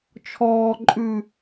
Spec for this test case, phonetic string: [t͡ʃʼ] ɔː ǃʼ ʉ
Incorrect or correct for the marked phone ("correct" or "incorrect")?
incorrect